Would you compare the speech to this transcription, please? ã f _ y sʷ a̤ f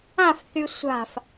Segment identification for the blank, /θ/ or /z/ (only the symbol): θ